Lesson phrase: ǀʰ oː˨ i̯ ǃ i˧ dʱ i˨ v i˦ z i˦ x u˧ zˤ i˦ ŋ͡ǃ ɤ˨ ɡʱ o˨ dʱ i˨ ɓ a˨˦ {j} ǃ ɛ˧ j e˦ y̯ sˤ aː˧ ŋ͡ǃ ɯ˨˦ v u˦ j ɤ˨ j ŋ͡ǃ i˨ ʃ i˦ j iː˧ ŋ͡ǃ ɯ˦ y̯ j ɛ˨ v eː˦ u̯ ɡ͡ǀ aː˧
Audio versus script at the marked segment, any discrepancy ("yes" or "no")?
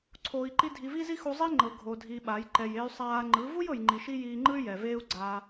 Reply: no